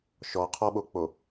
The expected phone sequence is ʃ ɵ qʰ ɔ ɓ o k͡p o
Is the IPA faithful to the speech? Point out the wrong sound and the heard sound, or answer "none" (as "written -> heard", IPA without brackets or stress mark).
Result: ɵ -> ɔ